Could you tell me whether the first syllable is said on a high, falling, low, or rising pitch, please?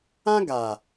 high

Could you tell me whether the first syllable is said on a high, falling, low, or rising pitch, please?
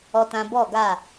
high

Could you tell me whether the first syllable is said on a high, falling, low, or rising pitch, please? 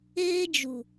high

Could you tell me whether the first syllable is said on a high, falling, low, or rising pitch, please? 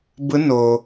rising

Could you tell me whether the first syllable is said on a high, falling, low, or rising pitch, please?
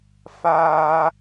high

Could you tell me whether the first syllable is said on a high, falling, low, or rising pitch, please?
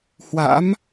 rising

